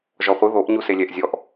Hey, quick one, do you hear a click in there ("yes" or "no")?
no